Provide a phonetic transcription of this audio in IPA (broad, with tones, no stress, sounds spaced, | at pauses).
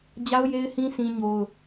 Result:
d͡ʑ a˦ ʊ̯ j e˦ ɪ̯ h ĩ˦ sʰ ĩ˦ ɲ o˦ ʊ̯